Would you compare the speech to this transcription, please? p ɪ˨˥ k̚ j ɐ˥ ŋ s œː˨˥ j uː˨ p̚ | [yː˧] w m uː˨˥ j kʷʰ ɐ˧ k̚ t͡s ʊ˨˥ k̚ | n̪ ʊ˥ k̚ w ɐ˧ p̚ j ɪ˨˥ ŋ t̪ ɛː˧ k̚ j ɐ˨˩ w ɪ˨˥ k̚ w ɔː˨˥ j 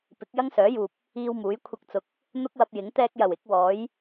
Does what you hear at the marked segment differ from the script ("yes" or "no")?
yes